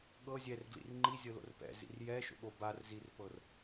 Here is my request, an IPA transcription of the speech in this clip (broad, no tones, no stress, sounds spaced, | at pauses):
ɠ ɤ zʲ ɛ r ɡ l ḭ r ŋ͡ǃ i zʲ ɤ l o̰ r p ɛ̰ z ḭ r j ɛ ʃ o̰ ɠ o b a r z i r p ɤ r